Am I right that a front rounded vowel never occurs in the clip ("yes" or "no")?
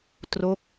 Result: yes